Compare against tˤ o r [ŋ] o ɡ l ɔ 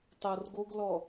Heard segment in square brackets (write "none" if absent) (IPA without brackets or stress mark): ɡ